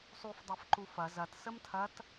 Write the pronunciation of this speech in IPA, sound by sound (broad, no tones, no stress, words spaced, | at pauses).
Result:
sˤufdˤɛfǃu fɐ zɐtsəm tʰɐt